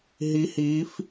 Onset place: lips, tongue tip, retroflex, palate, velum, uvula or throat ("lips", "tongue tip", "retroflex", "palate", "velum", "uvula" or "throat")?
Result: throat